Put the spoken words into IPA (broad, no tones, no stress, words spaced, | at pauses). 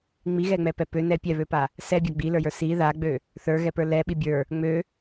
ŋ͡miɣɛŋ͡mɛpɛ pønɛ pʲɛβøpa | sɛbʲa ɡ͡bilə˞jə˞ si ðaɡ͡bø | θə˞ɣɛpə˞ lɛɓi bʲə˞ | ŋ͡mø